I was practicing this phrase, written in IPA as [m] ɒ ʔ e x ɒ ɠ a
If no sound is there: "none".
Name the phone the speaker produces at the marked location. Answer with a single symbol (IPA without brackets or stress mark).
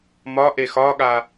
m